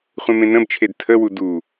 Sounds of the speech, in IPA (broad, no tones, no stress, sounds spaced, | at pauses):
χʷ ẽ m ẽ n ə̃ b t͡ʃʰ e d tʰ ə w u d u